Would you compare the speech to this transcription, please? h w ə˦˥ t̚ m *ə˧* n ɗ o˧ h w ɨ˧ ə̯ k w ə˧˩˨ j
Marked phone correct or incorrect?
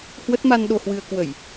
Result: incorrect